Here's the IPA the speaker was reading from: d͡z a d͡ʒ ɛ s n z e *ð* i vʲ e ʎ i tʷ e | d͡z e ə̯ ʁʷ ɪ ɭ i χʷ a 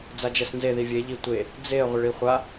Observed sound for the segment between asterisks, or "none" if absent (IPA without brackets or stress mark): ð